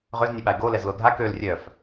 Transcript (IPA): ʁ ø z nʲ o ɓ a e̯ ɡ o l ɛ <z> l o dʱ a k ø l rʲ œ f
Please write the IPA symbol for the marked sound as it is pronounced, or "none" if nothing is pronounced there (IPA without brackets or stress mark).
z